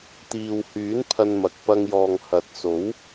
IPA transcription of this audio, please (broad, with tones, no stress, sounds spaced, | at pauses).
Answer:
t̪ iː˨ w h yː˨˥ n pʰ ɐ˧ n m ɐ˨ k̚ p ɐ˧ ŋ j ɔː˨ ŋ h ɐ˨ t̚ s o˨˥ w